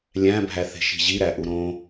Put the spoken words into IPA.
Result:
lʲæ̃bʱæ θe̤ʃi̤ʑiɾæ ʔuɾõ

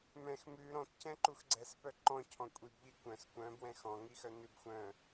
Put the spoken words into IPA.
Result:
mɛ̃x mʉ ɾɔ̃tcɛ̃ǃux ɡ͡ǀɛspœ ǃɔ̃ cʰɔ̃kʷʼib ʎikʷœ̃s kʷœ̃bwɛ̃ xɔ̃ŋixœ nʉbxʷœ̃

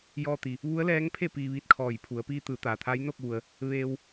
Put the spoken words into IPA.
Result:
jɔː˧t̪i˩ | ʋu˧˥ə̯lɛː˧˥ŋpʰe˥˨ piː˧ʋiː˧˥t̚kʰɔː˧˩jpʰu˩˧ə̯ piː˧t̪ɯː˩˧ t̪aː˩t̪ʰa˧˥j no˥˨k̚ʋu˩ə̯ | ʋeː˧w

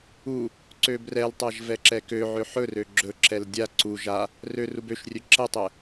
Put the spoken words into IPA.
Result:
u | ǀøbrɛltˤaʒ vɛǁɛkøʕø ħɵrø ɡ͡ǁɵǁɛl dʲa ǀu ʒa | rørub øʃrʲø ǁɛtˤɛ

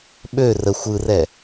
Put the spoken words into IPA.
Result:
ɓø rə xʷɯrɛ

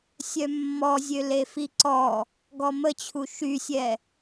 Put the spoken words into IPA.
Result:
sʲœmːɔzʲø lefiǀɔ | ɡɔmət͡ɕʰu ʃysʲɛ

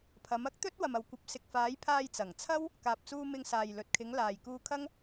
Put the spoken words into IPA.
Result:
pʰɐ˨˧mɐ˥k̚ t̪ɵ˥t̚ wɐ˨mɐ˨wkʷɐ˨˥p̚sɪ˨k̚ faː˨˥j pʰaː˧jt͡sɐ˨˩ŋt͡sʰɐ˥w | kaː˨p̚t͡suː˧ mɪ˧ŋ saː˨jlɵ˨t̚kʰɪ˨˧ŋ laː˨jkuː˧kʰɐ˥ŋ

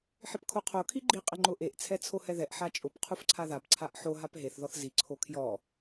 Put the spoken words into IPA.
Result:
ħɪpkʰoqʰo kʰiɡ͡ǃi qʼɪŋ͡ǃʊʔeʔ t͡sʰɛt͡sʰohɛðɛʔ ħat͡ʃʼʊp qʰufǀʰaðap ǀʰaʔħo ɦapɦeθ ðɔθzi ǀʰokʰjɔ

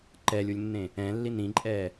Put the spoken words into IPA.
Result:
ǃɛːlʲulʲnːẽ | ɛ̃ːlːi nĩǃʼɛː

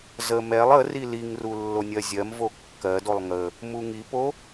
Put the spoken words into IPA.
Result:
zə mɛlˠ ə riliŋru lːonʲɜzʲɜmvo kːɜdolˠ ŋə | muŋipo

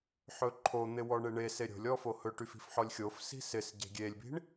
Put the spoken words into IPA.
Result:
ħɵǃʰon̪ɪ wɔɳeɳese ɾʲo̤lʲɔ fohɵʈyf i̤fħɔlʲxʲofsi̤ sɪs ɟe̤ɡʲelʲbi̤ɳ

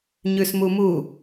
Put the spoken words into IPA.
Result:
ɲʉsmumu

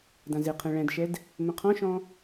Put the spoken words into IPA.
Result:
dãzɪqʰɛ̃ ɭɛ̃dʃɛd | mə̃qʰɔ̃ʃɔ̃

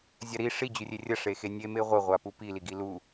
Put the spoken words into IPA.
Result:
zʲaɾi ʂi d͡ʑʉrʲerʲɐ ʂexenʲe meʁʷɐ ʁʷapupi liɡilu

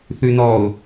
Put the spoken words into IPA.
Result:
θʉnɔʊ̯

